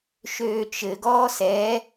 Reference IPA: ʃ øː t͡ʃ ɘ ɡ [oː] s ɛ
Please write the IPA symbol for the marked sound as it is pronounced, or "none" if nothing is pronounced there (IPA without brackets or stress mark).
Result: ɔː